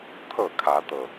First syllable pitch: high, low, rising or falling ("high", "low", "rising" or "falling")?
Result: falling